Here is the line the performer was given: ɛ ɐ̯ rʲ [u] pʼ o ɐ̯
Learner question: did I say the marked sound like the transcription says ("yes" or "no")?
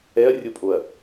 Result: no